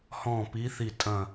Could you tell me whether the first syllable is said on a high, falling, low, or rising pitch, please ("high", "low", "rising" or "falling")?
falling